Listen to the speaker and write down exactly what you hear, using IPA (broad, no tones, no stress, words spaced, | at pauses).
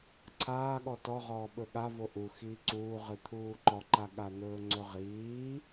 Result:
ǀʰaːɠɔ tɔʁɔː ɓɵɠa voʔu xiːǀuː ʁɨt̪ʰuːǃɔǃa ɠan̪ɵːŋ͡ǀɵʁiː